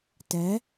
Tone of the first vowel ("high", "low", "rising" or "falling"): rising